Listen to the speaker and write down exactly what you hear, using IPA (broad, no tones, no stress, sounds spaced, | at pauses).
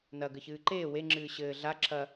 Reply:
n ɐ ɡ ɘ ç ɨː ǃ eː w e ŋ͡ǁ ɨː ɕ ɘː ɮ a ǁʰ ɐ